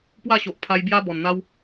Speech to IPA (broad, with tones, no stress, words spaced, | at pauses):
pwa˥˧ɕo˨ʔ pʰa˧j bja˦ bɔ˨˩nn̪a˦w